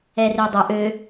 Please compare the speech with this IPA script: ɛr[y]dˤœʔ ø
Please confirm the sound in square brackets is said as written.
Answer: no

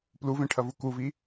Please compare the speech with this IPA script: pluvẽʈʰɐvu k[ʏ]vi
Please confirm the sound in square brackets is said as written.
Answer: no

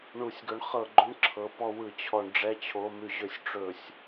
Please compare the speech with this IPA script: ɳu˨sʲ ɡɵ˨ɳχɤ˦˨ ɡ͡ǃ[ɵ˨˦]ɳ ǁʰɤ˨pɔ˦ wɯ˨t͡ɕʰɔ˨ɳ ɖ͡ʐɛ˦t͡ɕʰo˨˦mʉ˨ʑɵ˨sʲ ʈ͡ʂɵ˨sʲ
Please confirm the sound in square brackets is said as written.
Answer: no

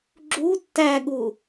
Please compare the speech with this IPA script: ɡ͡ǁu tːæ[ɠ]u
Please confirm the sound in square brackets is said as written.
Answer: yes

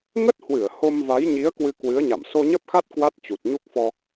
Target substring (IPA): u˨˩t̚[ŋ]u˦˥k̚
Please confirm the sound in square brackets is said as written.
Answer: no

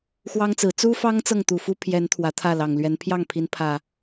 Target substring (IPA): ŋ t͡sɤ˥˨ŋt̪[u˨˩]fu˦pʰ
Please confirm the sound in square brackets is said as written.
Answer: yes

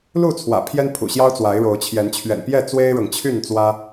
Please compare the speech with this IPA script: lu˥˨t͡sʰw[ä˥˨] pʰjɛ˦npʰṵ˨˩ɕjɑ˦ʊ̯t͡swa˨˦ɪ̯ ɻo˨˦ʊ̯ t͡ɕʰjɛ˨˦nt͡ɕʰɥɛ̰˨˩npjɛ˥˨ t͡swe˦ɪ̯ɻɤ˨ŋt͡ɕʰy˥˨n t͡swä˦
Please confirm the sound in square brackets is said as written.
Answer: no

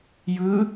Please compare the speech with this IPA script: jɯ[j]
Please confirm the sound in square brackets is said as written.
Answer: no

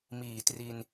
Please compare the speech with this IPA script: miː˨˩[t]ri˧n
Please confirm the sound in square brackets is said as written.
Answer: yes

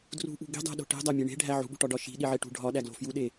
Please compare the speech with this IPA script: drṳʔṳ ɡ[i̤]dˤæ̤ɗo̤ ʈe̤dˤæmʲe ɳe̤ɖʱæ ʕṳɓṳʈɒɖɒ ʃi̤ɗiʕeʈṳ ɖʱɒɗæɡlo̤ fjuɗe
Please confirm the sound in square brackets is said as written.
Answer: yes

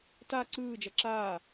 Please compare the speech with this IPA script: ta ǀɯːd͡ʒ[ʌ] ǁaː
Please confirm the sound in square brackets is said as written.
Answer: yes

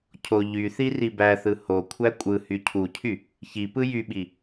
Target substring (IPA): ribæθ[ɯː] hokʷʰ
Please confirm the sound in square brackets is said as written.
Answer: no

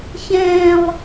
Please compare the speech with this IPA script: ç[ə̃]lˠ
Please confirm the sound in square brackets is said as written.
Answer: no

